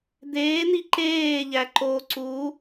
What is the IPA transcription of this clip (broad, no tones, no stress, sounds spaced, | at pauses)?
d̪ eː n i ǃ eː ʎ æ ǃ o ǀ u